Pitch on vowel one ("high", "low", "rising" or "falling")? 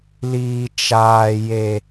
high